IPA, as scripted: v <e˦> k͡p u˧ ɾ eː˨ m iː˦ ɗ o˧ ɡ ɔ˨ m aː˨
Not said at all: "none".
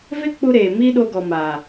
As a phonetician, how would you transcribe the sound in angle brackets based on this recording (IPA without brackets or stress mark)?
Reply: e˦